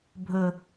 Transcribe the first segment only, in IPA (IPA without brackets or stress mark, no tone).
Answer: bʱ